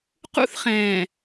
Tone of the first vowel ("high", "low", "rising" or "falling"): high